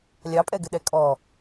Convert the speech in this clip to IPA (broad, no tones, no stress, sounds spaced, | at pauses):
lʲ ɑ pʼ ɛ ɡ ɘ ɗ ɛ kʼ ɔ